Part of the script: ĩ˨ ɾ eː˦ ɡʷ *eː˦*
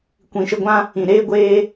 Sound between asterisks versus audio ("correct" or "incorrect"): correct